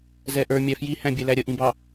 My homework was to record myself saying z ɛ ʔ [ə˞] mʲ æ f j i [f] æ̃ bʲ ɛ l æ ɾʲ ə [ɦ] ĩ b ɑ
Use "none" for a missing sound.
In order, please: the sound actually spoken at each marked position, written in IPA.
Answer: ə˞, h, ʔ

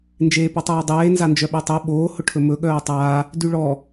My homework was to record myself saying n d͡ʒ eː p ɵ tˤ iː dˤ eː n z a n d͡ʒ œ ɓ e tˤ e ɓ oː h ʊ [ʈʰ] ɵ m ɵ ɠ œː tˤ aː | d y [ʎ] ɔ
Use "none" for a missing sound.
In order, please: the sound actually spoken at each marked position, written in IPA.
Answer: ʈʰ, ɭ

